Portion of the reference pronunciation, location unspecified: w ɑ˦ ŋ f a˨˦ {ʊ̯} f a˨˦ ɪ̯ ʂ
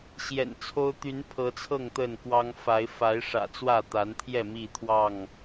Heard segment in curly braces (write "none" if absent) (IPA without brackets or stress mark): ɪ̯